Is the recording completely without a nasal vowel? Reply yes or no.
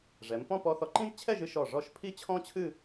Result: no